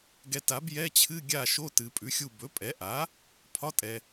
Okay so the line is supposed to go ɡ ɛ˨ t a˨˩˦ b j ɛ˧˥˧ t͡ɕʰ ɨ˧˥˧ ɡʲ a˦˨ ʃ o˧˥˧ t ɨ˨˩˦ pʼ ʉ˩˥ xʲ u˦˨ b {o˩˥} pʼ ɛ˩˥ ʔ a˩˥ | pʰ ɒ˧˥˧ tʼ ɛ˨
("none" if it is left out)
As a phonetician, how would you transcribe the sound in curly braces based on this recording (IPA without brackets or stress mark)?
ɵ˩˥